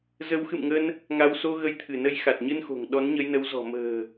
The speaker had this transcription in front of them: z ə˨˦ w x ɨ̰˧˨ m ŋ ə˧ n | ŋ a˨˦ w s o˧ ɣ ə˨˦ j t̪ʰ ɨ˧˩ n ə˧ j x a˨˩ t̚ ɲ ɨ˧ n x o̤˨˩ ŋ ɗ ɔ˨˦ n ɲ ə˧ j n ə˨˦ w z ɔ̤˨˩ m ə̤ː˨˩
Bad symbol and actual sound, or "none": none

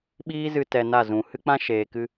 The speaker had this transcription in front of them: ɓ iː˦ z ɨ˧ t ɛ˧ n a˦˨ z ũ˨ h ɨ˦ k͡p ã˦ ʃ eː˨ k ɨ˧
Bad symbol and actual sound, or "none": none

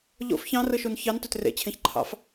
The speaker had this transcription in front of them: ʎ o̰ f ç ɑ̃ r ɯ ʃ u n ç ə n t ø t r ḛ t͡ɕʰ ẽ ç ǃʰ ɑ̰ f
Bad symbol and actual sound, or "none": ə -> ɑ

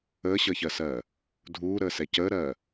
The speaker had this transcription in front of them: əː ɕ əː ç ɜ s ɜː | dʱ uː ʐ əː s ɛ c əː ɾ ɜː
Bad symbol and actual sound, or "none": ʐ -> ɾ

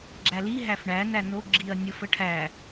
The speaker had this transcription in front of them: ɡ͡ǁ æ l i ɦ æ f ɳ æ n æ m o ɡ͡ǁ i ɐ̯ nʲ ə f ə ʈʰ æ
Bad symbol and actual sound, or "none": m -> n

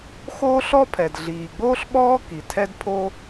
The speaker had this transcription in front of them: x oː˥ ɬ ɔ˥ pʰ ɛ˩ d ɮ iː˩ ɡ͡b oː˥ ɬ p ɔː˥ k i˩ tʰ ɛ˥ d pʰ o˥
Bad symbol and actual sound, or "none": p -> ɓ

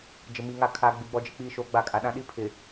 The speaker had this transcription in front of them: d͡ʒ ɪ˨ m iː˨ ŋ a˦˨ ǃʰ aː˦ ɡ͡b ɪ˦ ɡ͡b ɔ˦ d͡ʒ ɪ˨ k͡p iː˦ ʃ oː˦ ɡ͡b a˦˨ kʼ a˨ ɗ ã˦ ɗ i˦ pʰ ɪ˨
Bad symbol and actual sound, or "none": ǃʰ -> kʰ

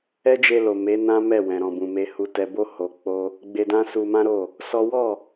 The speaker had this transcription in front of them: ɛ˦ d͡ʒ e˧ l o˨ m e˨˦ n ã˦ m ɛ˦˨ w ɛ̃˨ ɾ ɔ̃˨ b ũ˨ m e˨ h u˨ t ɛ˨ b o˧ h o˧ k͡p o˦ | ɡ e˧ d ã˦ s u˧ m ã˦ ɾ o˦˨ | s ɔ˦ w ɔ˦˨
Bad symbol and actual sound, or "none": ɡ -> ɡ͡b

